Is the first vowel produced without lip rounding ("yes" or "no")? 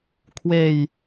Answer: yes